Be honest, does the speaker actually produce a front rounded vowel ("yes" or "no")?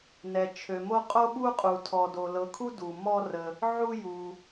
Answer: yes